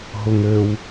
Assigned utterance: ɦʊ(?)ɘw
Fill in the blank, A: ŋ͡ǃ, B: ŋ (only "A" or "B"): B